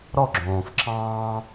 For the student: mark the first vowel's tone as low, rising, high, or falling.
falling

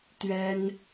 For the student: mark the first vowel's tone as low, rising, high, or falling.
high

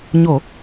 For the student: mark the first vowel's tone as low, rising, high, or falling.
low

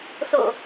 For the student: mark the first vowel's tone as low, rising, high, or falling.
low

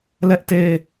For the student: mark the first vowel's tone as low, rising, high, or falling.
high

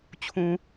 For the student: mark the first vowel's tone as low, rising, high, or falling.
low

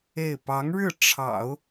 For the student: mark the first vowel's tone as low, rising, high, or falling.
falling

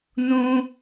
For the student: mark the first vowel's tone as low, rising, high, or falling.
high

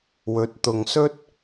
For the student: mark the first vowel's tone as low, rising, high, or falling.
rising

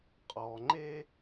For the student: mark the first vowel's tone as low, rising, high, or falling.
low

